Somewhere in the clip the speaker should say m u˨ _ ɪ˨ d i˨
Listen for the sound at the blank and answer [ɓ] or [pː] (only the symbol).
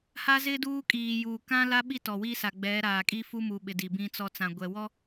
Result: ɓ